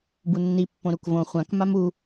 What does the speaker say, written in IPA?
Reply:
bunːi pːõɾukvõ χʷãk mamu

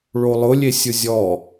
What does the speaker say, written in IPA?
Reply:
ɭolˠʊlʲe sʲʊzʲɔ

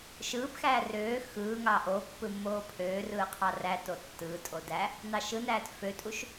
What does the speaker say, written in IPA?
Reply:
ʃɯːpxæː røː xɯːŋɑ ʔo pːɯmːoːpʰøːrɯː qʰɑræto tːɯːtʼo dæ | nɑʃɯnæːt føtʼuʃ

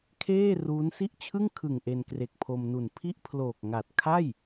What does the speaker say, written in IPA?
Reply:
kʰeː˥˩ ruː˦˥nsi˥˩ʔt͡ɕʰɯ˥˩ŋ kʰɯ˨˩ŋ ʔe˧nkre˨˩k̚pʰo˧mnu˨˩n pʰi˥˩ʔpʰloː˨˩k̚ ŋa˨˩t̚ kʰa˥˩j

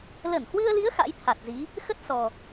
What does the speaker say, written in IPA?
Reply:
lə˧˩nhwɨ˧ə̯li˨˦ə̯ xa̰˧˥jt̪ʰa˨˩t̚zi˨˦ | xə˦˥t̚sɔ˨˩

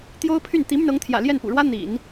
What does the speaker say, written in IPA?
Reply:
t̪jo˥ʊ̯pʰy˥˩n t̪i˧˥my˧nɤ˧˥ŋt̪ʰjä̰˨˩ ljɛ˥˩npṵ˨˩ɻwä˥ n̪ḭ˨˩˦n

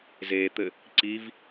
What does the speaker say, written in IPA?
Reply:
zet̪ɘ | ǀiv

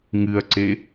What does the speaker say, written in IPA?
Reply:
ŋɨɐ̯ǀe

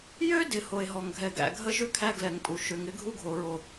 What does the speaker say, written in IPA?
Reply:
jø˦ dɪ˨ ho˨e̯ɦɔ˨ŋɡʱɛ˨ ɡæ̰˨ ɡʱə˦ʒʏ˦ kʰæ˦ɡlɛ˨ŋpʼu˨ ʃʏ˨ŋ ɪ˦ ɡʱu˦ɡʱo˨ɹo˨

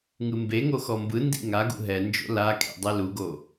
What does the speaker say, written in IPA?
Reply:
ŋɯmbeŋo xɔmbɯndḭ ŋaɡṵ ɦɛnd͡ʒo̰ lakʰḛ dˤɛluɡo

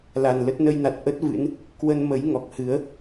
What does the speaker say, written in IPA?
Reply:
la˨˩nlə˦˥t̚ nə˧jna˨˩t̚ ʔə˦˥t̚vɨ̰˧˥n | kwə˧nmə˨˦j ŋɔ˨˩k̚hɨ˨˦ə̯

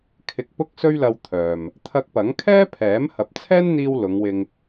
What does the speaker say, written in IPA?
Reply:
kʰɪ˧k̚pʊ˥k̚sɵ˥ɥlɐ˧w t̪ʰœː˨m | t̪ʰɐ˧k̚pɐ˨˥ŋkʰɛː˥pʰɛː˨˥m hɐ˨p̚t͡sʰɛː˥nn̪iː˧w lʊ˨˧ŋwɪ˧ŋ

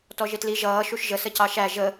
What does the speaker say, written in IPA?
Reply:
tɔʒɪtli ʒʌː ʃuʃʒə səcɑʃæ ʒə

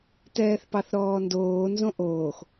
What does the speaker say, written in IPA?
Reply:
tɛːθpɑθɾɔːndoː nzõʔoːx

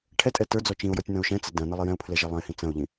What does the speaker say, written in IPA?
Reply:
ʈʰɛtʼɛ tə˞d͡zɔ t͡ʃĩʊ̯jɔtʲ nɐ̃ʊ̯ʃɛ̃t͡sə dɐ̃ nɐlˠijɛ̃ʊ̯pʰlɛ ʒɐlˠɐ̃ɪ̯hĩ t͡sɐ̃ʊ̯ʎĩ

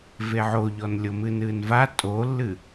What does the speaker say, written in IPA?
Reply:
veʕoʎɔn lʲomɨnɨːnva tʼolːɨ

